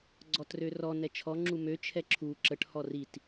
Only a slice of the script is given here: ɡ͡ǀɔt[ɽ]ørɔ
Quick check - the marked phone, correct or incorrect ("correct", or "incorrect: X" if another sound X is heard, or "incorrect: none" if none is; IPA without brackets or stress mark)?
incorrect: r